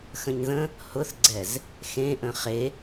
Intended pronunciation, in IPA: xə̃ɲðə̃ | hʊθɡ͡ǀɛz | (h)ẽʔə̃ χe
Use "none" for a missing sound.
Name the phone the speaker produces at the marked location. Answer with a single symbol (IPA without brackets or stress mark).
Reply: x